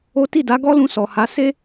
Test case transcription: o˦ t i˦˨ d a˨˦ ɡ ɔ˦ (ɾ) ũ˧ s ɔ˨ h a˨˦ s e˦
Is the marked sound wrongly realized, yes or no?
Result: yes